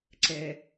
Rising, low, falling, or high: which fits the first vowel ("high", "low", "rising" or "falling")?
low